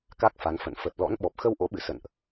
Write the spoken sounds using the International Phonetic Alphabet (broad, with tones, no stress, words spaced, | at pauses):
ka˦˥k̚fa˨˦nfə̰˧˨n fə˨˩t̚lɔ̰˧˥n ɓɔ˨˩p̚xə˧wʔo̰˧˥ɓɨ˧˩ sə̰˧˨nʔ